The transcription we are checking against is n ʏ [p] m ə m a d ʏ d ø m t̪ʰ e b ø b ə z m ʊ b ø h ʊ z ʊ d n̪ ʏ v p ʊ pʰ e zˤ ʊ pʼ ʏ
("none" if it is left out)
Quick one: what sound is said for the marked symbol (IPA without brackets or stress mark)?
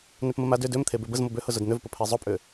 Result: p